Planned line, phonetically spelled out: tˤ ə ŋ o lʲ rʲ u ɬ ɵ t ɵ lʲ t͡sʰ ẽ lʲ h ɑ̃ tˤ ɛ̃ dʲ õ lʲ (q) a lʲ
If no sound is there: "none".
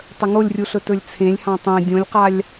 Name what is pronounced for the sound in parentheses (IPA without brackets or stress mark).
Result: q